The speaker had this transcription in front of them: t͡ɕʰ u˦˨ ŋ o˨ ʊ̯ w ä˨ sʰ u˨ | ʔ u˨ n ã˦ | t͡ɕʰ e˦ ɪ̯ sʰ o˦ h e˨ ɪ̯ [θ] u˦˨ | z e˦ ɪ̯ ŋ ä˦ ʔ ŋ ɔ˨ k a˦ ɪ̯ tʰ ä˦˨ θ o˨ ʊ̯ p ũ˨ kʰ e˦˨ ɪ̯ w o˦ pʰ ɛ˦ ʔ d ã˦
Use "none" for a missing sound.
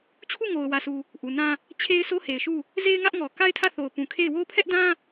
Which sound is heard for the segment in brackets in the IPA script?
ʃ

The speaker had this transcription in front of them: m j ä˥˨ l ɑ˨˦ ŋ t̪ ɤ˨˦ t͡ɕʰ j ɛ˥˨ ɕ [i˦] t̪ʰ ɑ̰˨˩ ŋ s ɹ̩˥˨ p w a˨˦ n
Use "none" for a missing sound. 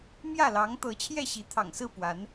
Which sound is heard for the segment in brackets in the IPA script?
i˨˦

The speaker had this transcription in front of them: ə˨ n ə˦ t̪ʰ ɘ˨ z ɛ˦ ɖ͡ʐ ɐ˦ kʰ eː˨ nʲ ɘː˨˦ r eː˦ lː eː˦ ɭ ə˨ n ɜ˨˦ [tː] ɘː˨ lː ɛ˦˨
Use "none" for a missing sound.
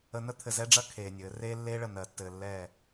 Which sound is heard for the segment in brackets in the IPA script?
tː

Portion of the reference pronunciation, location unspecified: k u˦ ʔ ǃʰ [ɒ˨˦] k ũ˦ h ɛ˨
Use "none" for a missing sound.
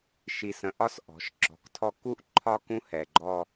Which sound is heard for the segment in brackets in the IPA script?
ɒ˦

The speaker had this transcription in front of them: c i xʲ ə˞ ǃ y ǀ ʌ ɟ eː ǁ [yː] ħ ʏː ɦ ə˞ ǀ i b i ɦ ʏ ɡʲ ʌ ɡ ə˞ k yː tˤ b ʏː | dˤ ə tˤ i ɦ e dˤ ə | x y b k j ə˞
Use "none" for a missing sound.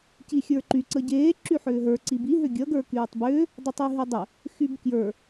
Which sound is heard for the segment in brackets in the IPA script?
y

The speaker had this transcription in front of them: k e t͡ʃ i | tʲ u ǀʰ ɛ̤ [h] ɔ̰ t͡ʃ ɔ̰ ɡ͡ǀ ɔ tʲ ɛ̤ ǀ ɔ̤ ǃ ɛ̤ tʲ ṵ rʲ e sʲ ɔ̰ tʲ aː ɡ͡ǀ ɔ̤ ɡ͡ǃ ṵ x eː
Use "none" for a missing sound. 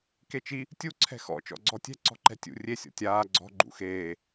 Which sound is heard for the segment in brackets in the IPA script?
x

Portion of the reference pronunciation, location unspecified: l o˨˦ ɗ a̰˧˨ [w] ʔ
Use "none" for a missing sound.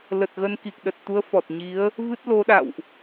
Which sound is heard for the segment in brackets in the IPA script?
w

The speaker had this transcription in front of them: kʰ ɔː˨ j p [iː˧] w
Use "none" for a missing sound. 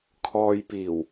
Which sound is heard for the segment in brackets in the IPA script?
iː˨˩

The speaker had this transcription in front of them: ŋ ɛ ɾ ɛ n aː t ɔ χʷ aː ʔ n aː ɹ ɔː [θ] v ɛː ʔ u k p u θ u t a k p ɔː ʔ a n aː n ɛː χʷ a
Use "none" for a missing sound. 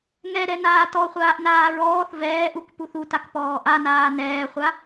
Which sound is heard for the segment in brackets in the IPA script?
θ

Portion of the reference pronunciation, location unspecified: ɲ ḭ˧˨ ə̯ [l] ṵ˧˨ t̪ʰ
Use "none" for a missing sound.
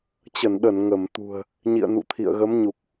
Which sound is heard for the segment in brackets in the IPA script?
n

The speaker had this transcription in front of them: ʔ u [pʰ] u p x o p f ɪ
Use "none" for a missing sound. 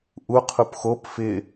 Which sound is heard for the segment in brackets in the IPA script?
qʰ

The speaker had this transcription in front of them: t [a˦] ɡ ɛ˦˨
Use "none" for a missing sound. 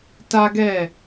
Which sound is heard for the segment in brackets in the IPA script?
a˦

